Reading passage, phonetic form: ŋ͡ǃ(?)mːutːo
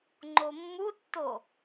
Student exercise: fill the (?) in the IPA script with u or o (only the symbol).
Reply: o